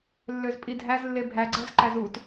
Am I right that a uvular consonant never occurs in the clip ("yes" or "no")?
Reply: yes